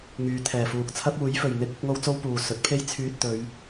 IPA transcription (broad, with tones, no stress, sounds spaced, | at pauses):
ŋ yː˨˧ t̪ʰ ɛː˨˩ f uː˨ k̚ t͡sʰ ɐ˥ p̚ uː˨˥ j f ɵ˨ ɥ n̪ ɪ˥ k̚ ɪ˥ k̚ ŋ o˥ w t͡s o˥ w p uː˨ s ɵ˨˥ t̚ pʰ e˥ j t͡sʰ yː˧ t̚ t̪ ɵ˨˧ ɥ